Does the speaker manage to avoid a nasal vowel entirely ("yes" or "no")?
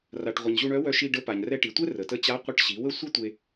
yes